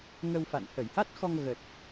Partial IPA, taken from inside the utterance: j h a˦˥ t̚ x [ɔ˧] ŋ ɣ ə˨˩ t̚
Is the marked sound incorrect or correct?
correct